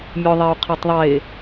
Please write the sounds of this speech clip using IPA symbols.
mʲoðˤeu̯ qʰetˤðˤe

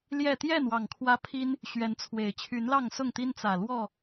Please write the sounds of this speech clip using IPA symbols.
ljɛ˥˨ t̪jɛ˥˨nwɑ˨˩ŋ kʰwä˦pʰi˦n | ɕɥɛ˨˦nt͡sʰwe˨˩ɪ̯ t͡ɕʰy˨˦nlɑ˥˨ŋsʊ˥˨ŋ t̪i˦nt͡sä˨˩lwɔ˥˨

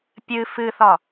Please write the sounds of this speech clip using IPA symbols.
pʲɨ fɨθɒ

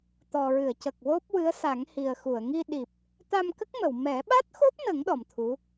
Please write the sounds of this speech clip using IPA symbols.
t̪ɔ˨˩ɹɨ˨˩˨ə̯cə˨˩k̚ wo˦˥p̚wɨ˧˥ə̯ sa˨˩˦ŋhi˨˩ə̯ xu˨˩˨ə̯ŋi˧ ɗi˨˩p̚ | t̪a˧mkə˦˥k̚mə˨˩˨w mɛ˨˩˦ɓa˦˥t̚xo˦˥p̚nə˨˩˦ŋ ɗɔ˨˩mt̪ʰu˧˥

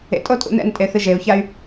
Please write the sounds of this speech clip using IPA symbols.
ḛtʼotʼṵ nɛ̰ntʼeθɨ ʒeu̯çay̯

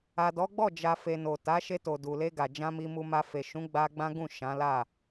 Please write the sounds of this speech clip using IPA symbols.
a˨dɔ˨˦ɡ͡bɔ˦˨d͡ʒa˨ fe˨no˨ ta˨˦ʃe˧to˨ du˨le˧ ɡa˨d͡ʒã˧ mi˨mu˨ma˨ fe˨ʃũ˨˦ ɡ͡ba˧ɡ͡bã˦ɡũ˦˨ ʃã˨˦la˦˨

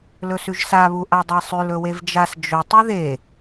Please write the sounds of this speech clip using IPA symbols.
lɵsʉʒsa βuʔadˤesˤʉl ɵwevd͡ʒas d͡ʒɵ tˤʉðe

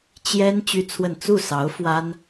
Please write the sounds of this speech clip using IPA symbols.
t͡ɕjɛ˥n t͡ɕy˥t͡sʰwə˥˧n t͡su˥˩sɑ˧˥ʊ̯ fwa˥n

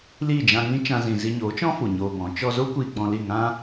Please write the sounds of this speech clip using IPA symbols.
liː˦˨d͡ʒã˧ŋĩ˦ t͡ʃã˧zĩ˨ zi˧ɲoː˨˦t͡ʃɔ̃˦fu˨ ɲoː˧bɔ̃˨˦ t͡ʃɔ˧zo˦ kʷiː˧ɡ͡bɔ̃˧li˦˨ŋã˦

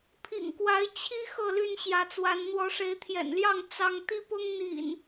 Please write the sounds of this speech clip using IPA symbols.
pʰḭ˨˩ŋkwa˨˦ɪ̯ t͡ɕʰi˦ xɤ˥˨ly˥˨nɕjä˨˦t͡swa˨˦n n̪wɔ˨˦ʂe˨˦ɪ̯t̪ʰjɛ̰˨˩nljɑ˥˨ŋ t͡sɑ˦ŋ t̪i˦pʊ˦ŋ n̪ḭ˨˩n

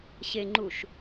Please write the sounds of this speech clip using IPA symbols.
ɕeŋ͡ǃuʃ

